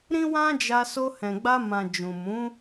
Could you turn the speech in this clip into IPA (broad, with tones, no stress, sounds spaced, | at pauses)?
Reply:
ɾ ĩ˦ w ã˦ d͡ʒ a˧ s o˧ h ɛ̃˨ ɡ͡b a˧ m ã˨ d͡ʒ ũ˨ m ũ˨˦